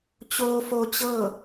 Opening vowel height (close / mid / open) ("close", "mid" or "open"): mid